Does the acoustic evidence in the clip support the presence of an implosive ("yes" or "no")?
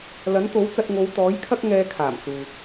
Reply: no